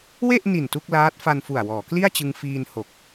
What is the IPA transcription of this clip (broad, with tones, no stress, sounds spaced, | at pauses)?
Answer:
w e˥˩ ʔ n i˨˩ n t u˥˩ k̚ l aː˦˥ t̚ f a˧ n f u˨˩ a̯ w ɔː˩˦ k l i˥˩ a̯ t͡ɕ ɯ˧ ŋ f iː˧ n h o˨˩ k̚